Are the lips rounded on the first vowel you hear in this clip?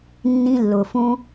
no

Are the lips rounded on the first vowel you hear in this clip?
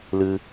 no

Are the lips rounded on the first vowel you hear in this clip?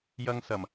no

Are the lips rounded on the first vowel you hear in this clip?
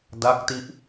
no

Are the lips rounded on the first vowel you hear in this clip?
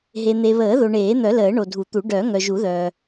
no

